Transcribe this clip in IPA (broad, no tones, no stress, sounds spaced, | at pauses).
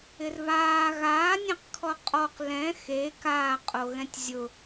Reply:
ɪ r β aː ɣ aː nʲ ẽ q kʰ ɔ qʼ ɔ q l ɛ̃ x e k aː qʼ o ɣ ɛ̃ tʲ zʲ ʊ